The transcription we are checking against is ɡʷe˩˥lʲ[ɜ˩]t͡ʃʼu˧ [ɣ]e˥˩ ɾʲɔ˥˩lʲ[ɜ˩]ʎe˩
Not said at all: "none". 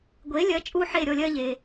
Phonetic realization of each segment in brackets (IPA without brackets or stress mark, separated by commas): ɜ˩˥, ħ, ɜ˥